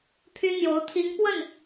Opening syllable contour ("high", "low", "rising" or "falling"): high